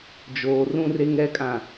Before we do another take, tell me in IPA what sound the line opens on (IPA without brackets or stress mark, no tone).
d͡ʒ